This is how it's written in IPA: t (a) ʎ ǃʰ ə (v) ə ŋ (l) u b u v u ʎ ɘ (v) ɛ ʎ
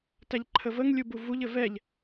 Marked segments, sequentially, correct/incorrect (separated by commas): incorrect, correct, incorrect, correct